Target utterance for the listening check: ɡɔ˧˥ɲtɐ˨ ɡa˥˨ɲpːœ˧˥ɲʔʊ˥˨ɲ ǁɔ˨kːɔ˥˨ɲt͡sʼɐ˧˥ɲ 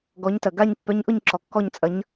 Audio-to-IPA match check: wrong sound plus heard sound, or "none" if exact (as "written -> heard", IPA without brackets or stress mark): none